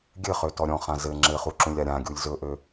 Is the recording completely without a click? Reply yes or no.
no